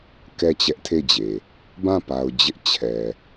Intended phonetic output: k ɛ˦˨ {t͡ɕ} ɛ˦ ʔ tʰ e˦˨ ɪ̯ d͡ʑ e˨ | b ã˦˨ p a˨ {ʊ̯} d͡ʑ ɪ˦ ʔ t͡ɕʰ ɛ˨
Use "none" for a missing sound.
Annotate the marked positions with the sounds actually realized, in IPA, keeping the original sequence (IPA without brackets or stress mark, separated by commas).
t͡ɕ, ʊ̯